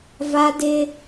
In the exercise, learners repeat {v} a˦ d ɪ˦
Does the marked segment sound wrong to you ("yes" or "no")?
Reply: no